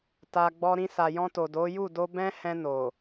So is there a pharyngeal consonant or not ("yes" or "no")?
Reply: no